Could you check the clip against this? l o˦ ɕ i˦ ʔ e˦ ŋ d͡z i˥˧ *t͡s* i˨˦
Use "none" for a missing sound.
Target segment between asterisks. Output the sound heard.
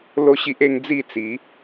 t͡s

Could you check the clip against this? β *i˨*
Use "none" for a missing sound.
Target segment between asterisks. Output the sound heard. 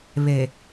e˨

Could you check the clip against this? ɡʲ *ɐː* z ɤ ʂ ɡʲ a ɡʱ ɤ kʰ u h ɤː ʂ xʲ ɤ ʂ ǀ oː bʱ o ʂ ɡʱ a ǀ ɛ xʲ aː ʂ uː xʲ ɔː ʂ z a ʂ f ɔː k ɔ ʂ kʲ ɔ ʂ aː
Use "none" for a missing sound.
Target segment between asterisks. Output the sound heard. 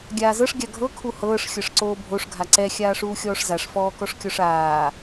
aː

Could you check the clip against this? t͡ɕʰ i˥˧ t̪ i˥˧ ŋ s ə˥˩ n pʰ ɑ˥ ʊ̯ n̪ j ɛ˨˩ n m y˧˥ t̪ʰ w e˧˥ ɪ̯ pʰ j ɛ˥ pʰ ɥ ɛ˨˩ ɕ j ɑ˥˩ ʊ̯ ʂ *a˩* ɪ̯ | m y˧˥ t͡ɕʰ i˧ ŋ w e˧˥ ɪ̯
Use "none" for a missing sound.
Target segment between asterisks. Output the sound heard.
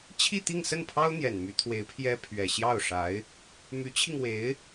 a˧˥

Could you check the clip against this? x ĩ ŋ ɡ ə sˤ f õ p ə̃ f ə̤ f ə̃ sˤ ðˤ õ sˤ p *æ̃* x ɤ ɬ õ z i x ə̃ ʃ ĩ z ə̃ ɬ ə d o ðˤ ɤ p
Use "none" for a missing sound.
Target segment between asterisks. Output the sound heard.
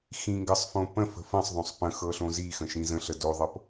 ə̃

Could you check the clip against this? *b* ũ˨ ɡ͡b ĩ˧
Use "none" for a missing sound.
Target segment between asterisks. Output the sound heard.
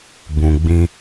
b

